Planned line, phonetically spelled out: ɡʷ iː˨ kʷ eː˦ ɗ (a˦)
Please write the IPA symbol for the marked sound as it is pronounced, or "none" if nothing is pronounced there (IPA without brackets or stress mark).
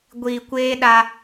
a˦